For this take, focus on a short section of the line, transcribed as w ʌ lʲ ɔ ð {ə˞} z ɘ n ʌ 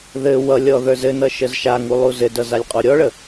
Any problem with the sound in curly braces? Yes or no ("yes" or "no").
no